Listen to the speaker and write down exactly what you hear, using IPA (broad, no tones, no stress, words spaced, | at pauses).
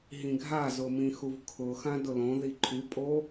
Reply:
ɦĩɡʱazʊ mĩxuvkʰʊxã dʊlõði ǃʰypʼo